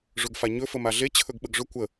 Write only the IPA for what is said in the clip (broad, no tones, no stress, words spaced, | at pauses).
ʐɵɡfaɲɵ fəmaɮe t͡ɕʰɵɡɓəɡʐɵ kʷə